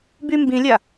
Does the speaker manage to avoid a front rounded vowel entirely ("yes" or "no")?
no